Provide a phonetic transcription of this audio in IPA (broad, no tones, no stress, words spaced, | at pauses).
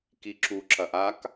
kiǁu ǁɐʔak